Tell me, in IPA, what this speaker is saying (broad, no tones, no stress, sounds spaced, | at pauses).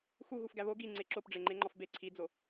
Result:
x u ɣ u f ɡ æ β o ɡ i ŋ͡ǀ e ǁ o p ɖ͡ʐ e ŋ͡ǃ e ŋ͡ǃ ɒ f b e ǀʰ i d͡z o